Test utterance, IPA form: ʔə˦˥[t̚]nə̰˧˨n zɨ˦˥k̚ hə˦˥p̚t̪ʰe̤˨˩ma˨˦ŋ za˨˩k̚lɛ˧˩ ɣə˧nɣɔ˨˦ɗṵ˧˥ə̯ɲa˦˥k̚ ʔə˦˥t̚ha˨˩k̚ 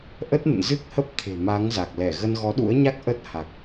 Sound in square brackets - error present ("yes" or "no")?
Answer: no